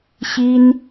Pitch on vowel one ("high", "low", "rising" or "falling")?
high